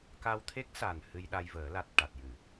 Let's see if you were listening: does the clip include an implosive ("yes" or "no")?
yes